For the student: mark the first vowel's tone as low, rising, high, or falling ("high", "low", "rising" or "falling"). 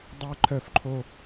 high